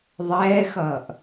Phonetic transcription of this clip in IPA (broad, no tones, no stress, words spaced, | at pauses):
ðˤɛːxʌːʔ